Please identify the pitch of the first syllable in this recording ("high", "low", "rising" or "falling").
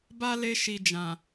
high